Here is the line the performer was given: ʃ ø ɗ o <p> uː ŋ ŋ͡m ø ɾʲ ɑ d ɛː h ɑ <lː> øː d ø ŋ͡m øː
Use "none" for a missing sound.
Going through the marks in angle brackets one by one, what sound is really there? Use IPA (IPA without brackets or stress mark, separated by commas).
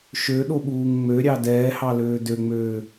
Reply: ɓ, l